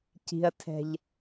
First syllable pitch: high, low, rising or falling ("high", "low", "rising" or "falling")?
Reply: low